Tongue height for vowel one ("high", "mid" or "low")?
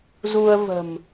high